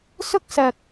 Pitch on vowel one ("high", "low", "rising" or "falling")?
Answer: high